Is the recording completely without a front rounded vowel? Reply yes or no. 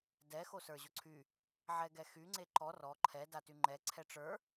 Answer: no